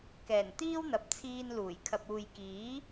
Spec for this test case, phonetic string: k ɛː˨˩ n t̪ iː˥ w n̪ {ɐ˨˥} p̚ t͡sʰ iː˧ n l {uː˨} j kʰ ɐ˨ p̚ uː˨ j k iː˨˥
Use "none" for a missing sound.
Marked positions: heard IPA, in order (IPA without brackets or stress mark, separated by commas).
ɐ˨, uː˨˩